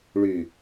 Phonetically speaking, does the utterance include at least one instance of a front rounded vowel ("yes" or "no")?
yes